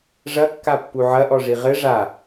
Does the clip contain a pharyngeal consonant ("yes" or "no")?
yes